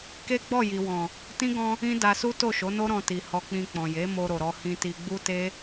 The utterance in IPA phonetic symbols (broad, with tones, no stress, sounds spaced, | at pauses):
k e˦ ɡ͡b ɔ˦˨ j i˨ w ɔ̃˨ | t ĩ˦ ɡ ɔ̃˧ | ĩ˦ d a˧ s u˦ t o˦˨ ʃ o˨˦ n o˦ ɾ ɔ̃˧ t i˨ h ɔ˧ k͡p ĩ˧ k͡p ɔ̃˨ j e˨˦ m o˧ ɾ o˨ ɾ ɔ˧ h ĩ˧ t i˧ ɡ͡b u˦ t e˦